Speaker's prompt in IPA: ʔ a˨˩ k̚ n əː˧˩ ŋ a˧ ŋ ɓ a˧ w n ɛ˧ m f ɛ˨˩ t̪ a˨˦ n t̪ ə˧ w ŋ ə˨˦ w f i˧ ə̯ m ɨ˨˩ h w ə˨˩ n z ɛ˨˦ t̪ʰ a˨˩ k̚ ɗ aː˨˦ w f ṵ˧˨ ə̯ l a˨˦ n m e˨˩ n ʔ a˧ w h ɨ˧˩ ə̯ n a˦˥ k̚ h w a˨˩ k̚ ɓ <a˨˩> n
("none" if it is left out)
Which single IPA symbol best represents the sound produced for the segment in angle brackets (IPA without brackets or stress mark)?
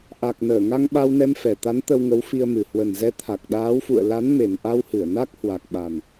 a˨˩